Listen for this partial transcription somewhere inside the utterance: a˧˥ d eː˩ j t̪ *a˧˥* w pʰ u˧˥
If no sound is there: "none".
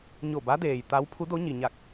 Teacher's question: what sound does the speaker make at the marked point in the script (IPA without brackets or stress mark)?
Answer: a˧˥